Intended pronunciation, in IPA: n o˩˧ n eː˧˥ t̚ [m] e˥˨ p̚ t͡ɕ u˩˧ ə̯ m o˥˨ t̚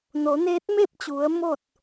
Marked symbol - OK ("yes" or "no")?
yes